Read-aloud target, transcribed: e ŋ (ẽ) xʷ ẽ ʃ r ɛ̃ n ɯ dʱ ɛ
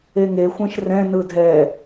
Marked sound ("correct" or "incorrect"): incorrect